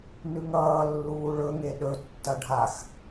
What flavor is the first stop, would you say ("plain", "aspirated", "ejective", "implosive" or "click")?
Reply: implosive